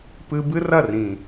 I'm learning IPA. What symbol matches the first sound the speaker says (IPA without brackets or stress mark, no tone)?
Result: p